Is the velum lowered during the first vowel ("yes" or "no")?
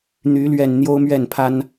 no